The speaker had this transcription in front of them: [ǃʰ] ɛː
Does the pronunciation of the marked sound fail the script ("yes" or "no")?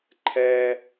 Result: no